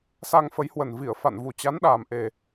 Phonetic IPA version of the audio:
s a˧ ŋ f ə˨˦ j h w ə˨˩ n v i˧˩ ə̯ f a̰˧˨ n v u˨˩ t͡ɕ a˨˦ n ɗ aː˨˩ m ʔ e˨˩

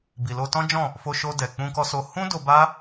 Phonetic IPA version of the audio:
b i˨ l o˧ t ɔ̃˦ d͡ʒ ɔ̃˦˨ | f o˧ ʃ o˧ d ɛ˨ k͡p ũ˧ k ɔ˧ s o˧ h ũ˦ d o˧ b a˦

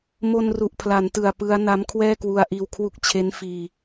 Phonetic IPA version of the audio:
m o˧ n r u˨˩ ʔ pʰ l a˩˦ n t ɯ˨˩ a̯ p ɯ˦˥ a̯ n a˦˥ m kʰ w ɛː˥˩ k w u˧ a̯ ʔ iː˧ w kʰ w u˦˥ k̚ t͡ɕʰ e˦˥ n f iː˧

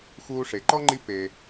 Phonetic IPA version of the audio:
x uː˥ ʂ e˧ ǃ ɔ˥ ŋ͡ǃ i˥ p eː˧

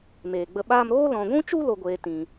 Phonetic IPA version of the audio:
m eː˨ ɡ͡b ə˧ ɓ aː˦ m ɾ oː˦ l ɔ̃˨ ɡʷ ũ˦ t͡ʃ u˦ l o˧ ɡʷ eː˧ t ĩ˨

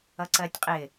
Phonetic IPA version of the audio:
ʌ ǀ ɜ tʲ qʼ ɪ

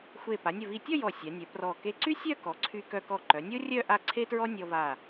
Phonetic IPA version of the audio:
xʷ e˧˩ p a˩˧ nʲ ə˧˩ v i˧˩ tʲ ɔ˥˧ j ɔ˧˩ sʲ a˩˧ nʲ œ˩˧ p r ɔ˧˩ k e˧ ǀ y˥ sʲ œ˥˧ k ɔ˩˧ ǀʰ y˧ k œ˧ k ɔ˧˩ ǃ œ˩˧ nʲ o˥ rʲ œ˥˧ ʔ a˥˧ ǀʰ e˥ t ɹ ɔ˥ nʲ ɔ˧ v a˧˩

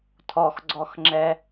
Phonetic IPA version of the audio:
tʰ ɔ x ɡ͡ǀ ɔ x ŋ͡ǁ ɛ

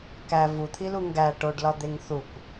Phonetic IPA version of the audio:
k æ v u t̪ʰ i l u ŋ ɡ æ ʈ o ɖ l ɒ d̪ e ŋ θ u kʷ

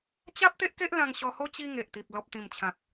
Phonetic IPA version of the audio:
t͡ɕ a˦ p̚ t̪ e˦ ʔ k e˦ ʔ l ã˧ ŋ ɕ ɔ˧ h o˦ t͡ɕ i˧ ŋ e˨ ʔ t̪ i˨ p̚ l ɔ˨ p̚ t̪ ĩ˨˩ m t͡ɕʰ ã˨ k̚

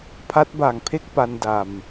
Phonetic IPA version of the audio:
pʰ a˦˥ t̚ b aː˨˩ ŋ pʰ e˥˩ k̚ p a˧ n d a˨˩ m

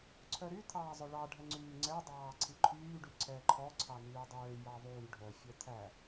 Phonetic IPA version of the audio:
ǀʰ œ ɾ y t̪ʰ ɑː zˤ ɵ ɭ ɑ ɖʱ ɛ ŋ͡ǀ yː ŋ͡ǀ ɛ dˤ ɑː ǀʰ i ǃʰ yː ɖ y ǀʰ ɛː ǃʰ ɔ ǀʰ ɑ n yː dˤ øː j ɑ ðˤ yː ɖʱ œ fʲ œ t̪ʰ æ

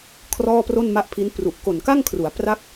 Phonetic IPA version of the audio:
kʰ r ɔː˥˩ p r o˥˩ n m a˥˩ ʔ pʰ i˦˥ n p r u˨˩ ʔ k o˨˩ n k a˥˩ ŋ kʰ r u˩˦ a̯ p r a˥˩ k̚

